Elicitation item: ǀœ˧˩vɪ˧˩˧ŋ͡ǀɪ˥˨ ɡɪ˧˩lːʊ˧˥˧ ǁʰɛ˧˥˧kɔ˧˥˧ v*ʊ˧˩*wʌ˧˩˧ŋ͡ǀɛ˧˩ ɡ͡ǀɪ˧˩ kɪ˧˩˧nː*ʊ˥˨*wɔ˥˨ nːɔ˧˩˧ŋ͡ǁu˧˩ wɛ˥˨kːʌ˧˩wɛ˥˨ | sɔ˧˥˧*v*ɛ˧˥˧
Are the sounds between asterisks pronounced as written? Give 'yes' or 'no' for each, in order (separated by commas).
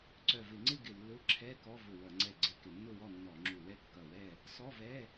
yes, yes, yes